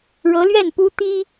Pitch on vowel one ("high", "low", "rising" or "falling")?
rising